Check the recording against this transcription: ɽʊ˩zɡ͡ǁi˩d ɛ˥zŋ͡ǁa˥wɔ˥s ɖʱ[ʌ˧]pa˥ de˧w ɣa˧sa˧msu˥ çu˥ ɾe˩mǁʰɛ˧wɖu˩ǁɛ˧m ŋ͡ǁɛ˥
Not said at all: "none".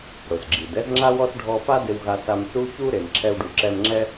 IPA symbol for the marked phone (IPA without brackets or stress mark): ɔ˧